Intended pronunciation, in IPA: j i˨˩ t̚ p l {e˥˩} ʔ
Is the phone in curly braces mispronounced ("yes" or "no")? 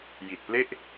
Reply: no